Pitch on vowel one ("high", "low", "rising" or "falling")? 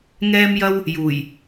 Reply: high